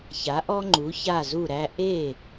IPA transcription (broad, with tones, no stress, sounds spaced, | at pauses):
ç a˩˥ ʔ ɔ˦ ŋ͡ǃ u˩˥ ç a˥˩ z u˥˩ ɾ æ˦ ʔ e˥˩